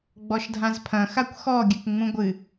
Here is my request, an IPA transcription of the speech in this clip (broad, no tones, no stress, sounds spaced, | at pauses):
ɡ͡b ɔ ʃ dʱ ã z pʰ ɐ̃ x a kʷ x ɔ ɡʲ ɘ k ŋ͡m ũ ɡʷ ɨ